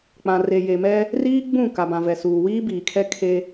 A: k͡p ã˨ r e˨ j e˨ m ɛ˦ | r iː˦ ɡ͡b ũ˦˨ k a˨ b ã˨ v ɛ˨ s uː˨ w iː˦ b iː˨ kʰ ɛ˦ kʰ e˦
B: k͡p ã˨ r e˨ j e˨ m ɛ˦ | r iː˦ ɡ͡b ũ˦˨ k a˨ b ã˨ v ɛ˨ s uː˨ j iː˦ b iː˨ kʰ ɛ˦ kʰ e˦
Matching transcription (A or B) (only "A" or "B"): A